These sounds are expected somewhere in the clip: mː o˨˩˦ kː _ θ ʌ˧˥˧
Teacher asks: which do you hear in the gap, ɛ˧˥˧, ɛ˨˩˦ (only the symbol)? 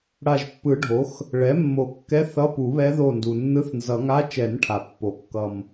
ɛ˧˥˧